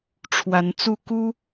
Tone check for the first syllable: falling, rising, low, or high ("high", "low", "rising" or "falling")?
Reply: rising